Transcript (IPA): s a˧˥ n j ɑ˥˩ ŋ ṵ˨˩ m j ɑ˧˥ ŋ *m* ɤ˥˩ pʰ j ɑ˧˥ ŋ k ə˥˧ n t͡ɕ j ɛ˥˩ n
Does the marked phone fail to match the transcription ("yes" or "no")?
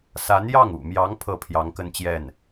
yes